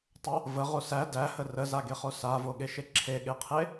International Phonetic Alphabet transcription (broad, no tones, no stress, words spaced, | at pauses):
tˤə | vəʁo sæ dæhə rəzaɡeχo savoɠeʃe ǁʰeɠeqʰe